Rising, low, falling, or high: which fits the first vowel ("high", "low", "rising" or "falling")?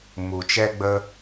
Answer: low